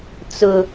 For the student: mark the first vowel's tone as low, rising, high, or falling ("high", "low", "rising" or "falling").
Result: low